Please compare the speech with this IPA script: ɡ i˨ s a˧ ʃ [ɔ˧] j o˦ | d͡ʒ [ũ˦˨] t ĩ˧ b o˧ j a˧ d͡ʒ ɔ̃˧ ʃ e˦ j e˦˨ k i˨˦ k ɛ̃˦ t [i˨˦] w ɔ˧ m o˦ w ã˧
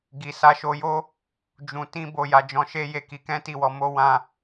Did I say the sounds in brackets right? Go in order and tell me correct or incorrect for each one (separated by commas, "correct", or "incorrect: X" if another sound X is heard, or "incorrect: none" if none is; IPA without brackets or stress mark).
incorrect: o˧, incorrect: ũ˨, incorrect: i˦˨